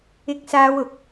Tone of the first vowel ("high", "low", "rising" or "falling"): high